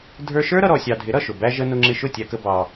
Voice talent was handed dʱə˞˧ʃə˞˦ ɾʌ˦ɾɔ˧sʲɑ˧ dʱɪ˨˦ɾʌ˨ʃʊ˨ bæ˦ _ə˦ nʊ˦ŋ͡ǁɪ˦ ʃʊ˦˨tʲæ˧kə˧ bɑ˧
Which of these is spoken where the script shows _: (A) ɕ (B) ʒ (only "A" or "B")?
B